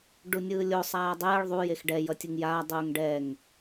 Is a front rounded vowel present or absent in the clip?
absent